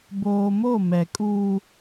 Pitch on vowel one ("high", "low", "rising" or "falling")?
low